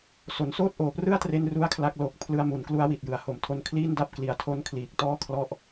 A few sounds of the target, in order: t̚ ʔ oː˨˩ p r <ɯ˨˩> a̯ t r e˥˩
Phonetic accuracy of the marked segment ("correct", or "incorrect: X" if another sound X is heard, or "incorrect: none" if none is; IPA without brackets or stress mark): incorrect: ɯ˥˩